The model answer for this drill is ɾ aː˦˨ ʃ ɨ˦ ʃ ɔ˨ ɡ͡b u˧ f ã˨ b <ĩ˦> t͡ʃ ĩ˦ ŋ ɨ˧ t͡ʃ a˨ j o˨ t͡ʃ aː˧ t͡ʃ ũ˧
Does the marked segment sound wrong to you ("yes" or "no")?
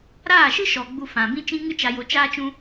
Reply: no